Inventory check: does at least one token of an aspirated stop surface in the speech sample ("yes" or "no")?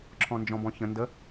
yes